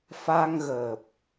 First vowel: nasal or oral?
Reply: oral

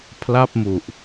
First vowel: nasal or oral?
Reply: oral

